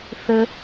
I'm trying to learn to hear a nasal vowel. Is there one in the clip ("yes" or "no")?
no